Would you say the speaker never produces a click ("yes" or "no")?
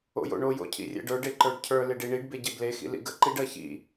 no